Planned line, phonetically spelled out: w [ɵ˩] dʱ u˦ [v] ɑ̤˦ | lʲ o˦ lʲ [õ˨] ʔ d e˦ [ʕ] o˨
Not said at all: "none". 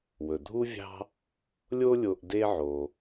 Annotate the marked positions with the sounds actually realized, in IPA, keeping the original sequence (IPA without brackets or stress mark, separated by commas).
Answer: ɵ˩, vʲ, o˨, ʕ